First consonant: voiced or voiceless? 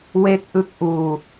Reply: voiced